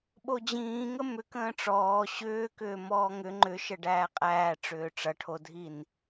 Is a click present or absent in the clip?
present